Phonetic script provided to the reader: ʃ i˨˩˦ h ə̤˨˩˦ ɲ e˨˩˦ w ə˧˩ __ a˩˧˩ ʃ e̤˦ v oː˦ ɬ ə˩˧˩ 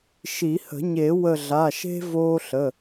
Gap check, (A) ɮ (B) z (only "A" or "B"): A